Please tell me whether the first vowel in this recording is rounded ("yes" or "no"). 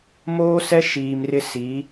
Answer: yes